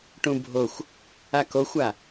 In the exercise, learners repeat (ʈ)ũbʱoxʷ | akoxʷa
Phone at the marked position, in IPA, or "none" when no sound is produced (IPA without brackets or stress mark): ʈ